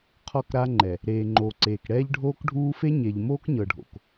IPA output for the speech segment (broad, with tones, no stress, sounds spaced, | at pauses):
qʰ ɔ˦˨ k ɾ a˦ ŋ͡ǃ ɛ˨ | ɾ eː˨ ŋ͡ǃ oː˨ ǀ eː˨ k ɽ ɛː˦ ʎ ɖʱ oː˦ k ɖʱ uː˦ f e˦ ɲ e˨ ʎ m oː˦ k ɲ ɤ˨ ɖʱ o̰˨ k